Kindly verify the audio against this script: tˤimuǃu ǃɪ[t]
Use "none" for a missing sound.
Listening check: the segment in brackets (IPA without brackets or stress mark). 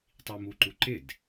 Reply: d